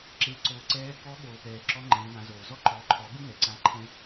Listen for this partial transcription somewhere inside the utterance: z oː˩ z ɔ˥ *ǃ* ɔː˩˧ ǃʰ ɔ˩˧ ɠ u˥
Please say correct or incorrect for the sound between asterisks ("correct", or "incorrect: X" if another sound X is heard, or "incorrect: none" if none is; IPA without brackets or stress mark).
correct